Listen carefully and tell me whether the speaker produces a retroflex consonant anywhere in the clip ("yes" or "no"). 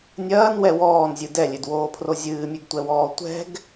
no